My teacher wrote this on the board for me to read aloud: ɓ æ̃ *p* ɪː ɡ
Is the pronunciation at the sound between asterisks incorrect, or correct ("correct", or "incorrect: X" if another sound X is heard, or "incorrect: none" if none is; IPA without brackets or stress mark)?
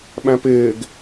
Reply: correct